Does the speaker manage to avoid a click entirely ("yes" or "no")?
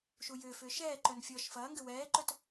no